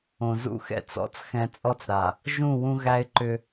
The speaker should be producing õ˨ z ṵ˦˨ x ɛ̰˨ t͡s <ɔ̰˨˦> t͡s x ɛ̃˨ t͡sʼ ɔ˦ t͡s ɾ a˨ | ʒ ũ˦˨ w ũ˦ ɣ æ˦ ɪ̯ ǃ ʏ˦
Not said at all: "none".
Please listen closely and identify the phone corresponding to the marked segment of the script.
ɔ̰˨˦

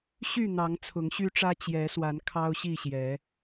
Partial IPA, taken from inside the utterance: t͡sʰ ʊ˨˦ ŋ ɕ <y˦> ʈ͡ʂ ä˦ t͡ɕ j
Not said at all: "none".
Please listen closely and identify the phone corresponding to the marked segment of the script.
y˦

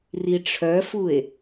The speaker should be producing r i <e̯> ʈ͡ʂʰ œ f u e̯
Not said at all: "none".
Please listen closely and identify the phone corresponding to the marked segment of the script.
none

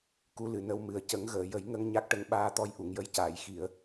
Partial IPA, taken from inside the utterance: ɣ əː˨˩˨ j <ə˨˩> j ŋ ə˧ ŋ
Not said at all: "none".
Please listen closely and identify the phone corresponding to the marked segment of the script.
ə˨˩˦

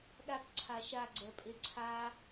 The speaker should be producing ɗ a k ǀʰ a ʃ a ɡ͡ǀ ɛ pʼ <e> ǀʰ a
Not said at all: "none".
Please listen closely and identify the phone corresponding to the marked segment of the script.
e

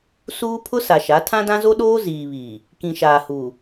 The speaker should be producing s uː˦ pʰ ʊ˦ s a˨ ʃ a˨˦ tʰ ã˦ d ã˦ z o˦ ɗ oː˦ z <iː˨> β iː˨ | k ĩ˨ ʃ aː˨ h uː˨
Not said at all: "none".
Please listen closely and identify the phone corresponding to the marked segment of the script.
iː˨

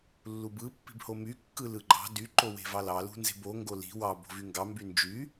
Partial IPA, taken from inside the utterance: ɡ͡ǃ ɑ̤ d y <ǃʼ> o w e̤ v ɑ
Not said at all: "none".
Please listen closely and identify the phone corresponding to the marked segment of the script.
ǃ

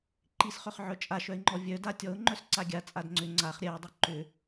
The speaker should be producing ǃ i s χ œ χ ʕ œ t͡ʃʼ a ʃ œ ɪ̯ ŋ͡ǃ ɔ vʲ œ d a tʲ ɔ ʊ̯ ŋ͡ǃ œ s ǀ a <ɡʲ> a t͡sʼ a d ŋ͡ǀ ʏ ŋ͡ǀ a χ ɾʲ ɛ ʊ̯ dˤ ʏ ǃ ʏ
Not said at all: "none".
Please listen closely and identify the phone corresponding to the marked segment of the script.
ɡʲ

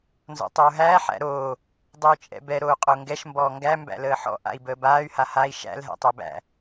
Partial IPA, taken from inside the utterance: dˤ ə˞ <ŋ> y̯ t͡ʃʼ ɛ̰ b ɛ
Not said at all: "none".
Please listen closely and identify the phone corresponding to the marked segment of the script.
none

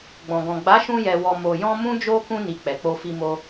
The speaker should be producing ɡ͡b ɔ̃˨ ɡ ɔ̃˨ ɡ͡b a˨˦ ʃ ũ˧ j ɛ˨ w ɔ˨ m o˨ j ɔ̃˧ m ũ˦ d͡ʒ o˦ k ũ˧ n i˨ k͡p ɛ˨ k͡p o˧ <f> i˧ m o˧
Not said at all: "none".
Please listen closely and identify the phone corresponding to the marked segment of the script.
f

